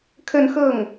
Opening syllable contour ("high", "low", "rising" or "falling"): falling